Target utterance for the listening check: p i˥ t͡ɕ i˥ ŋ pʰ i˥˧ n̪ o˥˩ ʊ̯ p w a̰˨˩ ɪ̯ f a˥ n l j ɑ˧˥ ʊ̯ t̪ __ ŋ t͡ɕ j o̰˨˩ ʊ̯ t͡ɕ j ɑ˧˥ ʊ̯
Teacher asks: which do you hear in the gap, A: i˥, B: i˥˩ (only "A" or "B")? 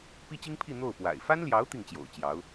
B